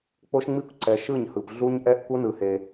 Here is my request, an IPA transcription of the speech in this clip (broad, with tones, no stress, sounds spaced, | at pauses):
k͡p o˦ ʃ ŋ͡m i˦ kʷ ǀ ɛ˨ ʃ ɯ˦˨ ɲ h ɯ˨ p ɮ u˦ ɲ ʔ ɛ˦ ʔ kʷ ɤ˦ n ɯ˨ h e˨